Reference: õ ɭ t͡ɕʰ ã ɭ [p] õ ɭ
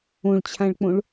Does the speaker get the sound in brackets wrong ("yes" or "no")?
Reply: yes